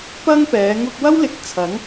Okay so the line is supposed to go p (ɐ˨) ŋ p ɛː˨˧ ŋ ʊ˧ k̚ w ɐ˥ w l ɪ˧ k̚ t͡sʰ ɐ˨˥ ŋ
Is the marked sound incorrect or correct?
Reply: incorrect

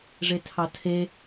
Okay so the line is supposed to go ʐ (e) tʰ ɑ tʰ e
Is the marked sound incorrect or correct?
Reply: correct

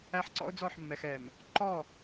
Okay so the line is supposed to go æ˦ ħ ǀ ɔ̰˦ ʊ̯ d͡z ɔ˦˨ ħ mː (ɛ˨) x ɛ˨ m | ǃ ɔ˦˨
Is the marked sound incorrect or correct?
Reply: correct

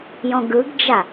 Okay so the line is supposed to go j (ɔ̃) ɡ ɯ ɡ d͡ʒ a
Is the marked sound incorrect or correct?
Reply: correct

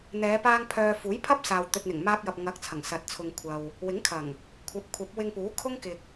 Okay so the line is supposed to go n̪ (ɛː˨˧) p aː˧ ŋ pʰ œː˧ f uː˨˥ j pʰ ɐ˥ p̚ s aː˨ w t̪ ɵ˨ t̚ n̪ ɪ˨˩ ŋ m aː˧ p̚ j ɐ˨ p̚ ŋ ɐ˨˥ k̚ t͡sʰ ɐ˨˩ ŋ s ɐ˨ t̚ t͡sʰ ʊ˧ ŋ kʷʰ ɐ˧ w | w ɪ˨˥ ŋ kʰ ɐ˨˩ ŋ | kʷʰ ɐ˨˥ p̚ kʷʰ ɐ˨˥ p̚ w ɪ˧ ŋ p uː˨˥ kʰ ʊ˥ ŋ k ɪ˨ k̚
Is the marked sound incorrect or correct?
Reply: correct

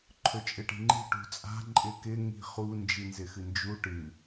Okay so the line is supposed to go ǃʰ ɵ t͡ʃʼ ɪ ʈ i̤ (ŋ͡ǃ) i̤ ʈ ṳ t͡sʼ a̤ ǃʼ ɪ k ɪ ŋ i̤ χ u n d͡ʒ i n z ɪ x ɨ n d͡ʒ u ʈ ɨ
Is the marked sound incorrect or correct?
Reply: correct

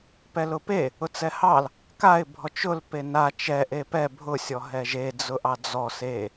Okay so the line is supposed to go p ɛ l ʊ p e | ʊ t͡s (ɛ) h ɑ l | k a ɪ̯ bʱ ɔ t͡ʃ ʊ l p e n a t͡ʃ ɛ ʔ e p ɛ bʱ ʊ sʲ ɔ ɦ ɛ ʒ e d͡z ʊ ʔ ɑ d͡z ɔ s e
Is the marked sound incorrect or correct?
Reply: correct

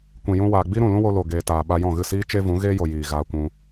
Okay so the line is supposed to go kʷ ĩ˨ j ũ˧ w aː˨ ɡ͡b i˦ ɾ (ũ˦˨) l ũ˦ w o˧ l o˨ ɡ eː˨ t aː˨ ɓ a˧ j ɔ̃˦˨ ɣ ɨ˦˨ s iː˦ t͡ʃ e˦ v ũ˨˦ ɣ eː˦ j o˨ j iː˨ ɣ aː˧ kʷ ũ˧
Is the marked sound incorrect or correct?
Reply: correct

